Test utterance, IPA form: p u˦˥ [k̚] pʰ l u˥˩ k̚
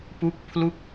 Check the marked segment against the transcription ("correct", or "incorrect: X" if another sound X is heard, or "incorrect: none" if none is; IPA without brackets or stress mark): correct